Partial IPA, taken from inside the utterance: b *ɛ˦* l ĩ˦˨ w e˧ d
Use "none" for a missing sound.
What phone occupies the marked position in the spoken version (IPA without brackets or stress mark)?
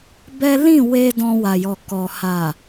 ɛ˦